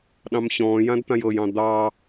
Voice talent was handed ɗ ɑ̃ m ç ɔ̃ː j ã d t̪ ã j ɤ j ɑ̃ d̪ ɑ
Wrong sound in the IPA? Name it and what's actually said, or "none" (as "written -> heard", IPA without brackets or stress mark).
none